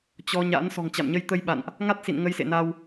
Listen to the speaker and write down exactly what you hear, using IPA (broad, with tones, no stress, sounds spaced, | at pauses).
t͡ɕ ɔ˧ ɲ a̰˧˥ n s ɔ̤˨˩ ŋ t͡ɕ a̰˧˨ m ɲ ə˧ j t̪ ə˧ j ɓ a̰˧˨ n ʔ | ŋ a˦˥ t̚ s ḭ˧˨ n ŋ ə˧ j s ḛ˧˨ n a˧ w